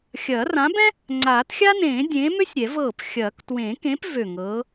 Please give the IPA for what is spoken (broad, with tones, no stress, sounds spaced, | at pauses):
xʲ ɐː˨˩˦ r ã˨˥ b ɛ̃˥ | ŋ͡ǀ aː˨˩˦ t xʲ a˥ n ẽː˨˩˦ dʲ ẽː˨˥ m ø˥ sʲ ɾʲ ɛ˨˩˦ v ɤː˧˩ p xʲ ɐː˨˩˦ k t w ẽː˨˩˦ k ẽ˨˥ p v ø˧˩ ŋ ɤː˨˥